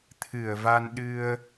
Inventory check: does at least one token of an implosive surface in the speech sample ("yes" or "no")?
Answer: yes